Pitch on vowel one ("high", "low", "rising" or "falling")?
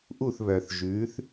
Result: falling